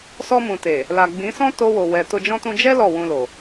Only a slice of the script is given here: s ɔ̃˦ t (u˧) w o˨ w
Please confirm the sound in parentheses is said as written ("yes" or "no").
no